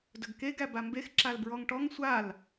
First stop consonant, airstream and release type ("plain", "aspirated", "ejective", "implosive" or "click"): plain